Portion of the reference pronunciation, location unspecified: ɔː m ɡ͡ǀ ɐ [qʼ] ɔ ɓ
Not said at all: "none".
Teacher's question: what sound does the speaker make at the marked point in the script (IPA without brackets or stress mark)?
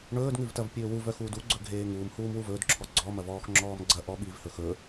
ʔ